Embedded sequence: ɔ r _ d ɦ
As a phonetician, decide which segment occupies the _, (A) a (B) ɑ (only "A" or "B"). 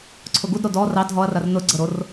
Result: B